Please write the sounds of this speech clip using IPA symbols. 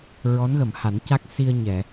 ɹɔ˧˥nɣə˨˩˨mha˨˩˦nca˦˥k̚ si˧ə̯ɲɛ˨˩˨

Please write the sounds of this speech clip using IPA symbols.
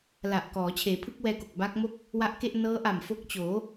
la˨˩ʔkɔː˩˦ t͡ɕʰeː˩˦pʰɯ˦˥k̚wɛː˧ko˨˩k̚ ba˦˥k̚mo˥˩k̚ | wa˦˥ʔke˥˩ʔ nɤː˦˥ʔa˨˩mfo˦˥k̚t͡ɕoː˩˦

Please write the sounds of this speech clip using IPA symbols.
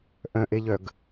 ʔœ̃ʔeʎœɡ

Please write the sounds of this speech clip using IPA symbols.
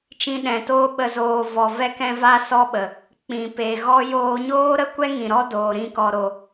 t͡ʃĩ˧ɗɛ̃˨toː˦ ɓə˨zoː˨ vɔ˨vɛ˧kɛ̃˧ va˦sɔ˦ɓə˨ | k͡pĩ˨pe˨ɣɔ˦ joː˧ɲoː˦ɾə˦kʷɛ˦ ŋĩ˨ɾɔ˦doː˨ ɾĩ˧kɔ˨ ɾo˨

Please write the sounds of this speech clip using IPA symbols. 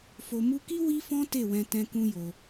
fo˨mu˧ki˦ wi˦fɔ̃˦ te˦˨wɛ̃˧ tɛ̃˦kũ˦jo˧

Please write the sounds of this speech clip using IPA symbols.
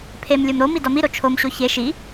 pʰemlʲom ɾomi dɒmiɾo t͡ʃʰomɕo çe ʃi

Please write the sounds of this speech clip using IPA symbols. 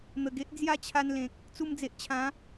n̪ə˨˩ɡe˦ʔd͡zja˥˧ t͡ɕʰa˧nlẽ˨k̚ | t͡su˧md͡ze˨ʔt͡ɕʰã˨˦

